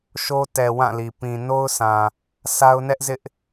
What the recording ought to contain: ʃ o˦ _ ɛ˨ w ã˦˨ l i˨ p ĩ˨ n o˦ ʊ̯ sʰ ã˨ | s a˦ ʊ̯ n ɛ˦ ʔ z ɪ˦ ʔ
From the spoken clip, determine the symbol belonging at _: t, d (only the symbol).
t